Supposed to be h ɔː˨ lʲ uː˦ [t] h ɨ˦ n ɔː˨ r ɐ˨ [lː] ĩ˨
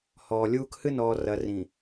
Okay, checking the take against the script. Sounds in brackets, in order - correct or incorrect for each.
incorrect: k, incorrect: r

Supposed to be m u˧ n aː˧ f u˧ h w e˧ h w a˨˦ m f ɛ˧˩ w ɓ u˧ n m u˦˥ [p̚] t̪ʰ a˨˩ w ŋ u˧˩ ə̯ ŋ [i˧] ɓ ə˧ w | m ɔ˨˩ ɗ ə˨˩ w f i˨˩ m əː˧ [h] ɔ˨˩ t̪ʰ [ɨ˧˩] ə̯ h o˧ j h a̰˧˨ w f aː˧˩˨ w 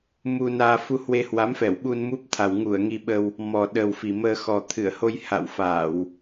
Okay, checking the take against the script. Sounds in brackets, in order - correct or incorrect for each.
correct, correct, incorrect: x, correct

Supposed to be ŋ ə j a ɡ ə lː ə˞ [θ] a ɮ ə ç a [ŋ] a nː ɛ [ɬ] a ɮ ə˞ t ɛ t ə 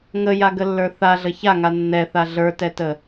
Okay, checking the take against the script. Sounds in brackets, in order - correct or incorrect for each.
correct, correct, incorrect: θ

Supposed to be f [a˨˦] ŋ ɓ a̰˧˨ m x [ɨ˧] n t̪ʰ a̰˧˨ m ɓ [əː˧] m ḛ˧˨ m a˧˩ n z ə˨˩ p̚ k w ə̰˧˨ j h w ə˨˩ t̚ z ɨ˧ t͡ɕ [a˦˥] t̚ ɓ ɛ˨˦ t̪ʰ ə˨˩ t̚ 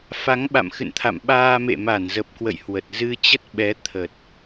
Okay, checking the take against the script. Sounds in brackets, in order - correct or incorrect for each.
correct, incorrect: ɨ̰˧˨, incorrect: aː˧, incorrect: ə˦˥

